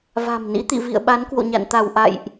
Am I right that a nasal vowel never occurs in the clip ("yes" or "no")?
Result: yes